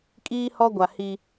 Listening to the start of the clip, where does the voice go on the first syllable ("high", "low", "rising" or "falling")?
high